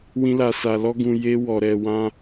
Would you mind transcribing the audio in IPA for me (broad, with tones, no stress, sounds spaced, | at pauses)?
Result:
w ĩ˧ l a˨ s a˨ l ɔ˧ ɡ ũ˨ j e˧ w ɔ˨ ɾ ɛ˨ w ã˧